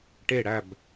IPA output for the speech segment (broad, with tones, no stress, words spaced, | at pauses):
ʈe˦˨ɽæ˦˨b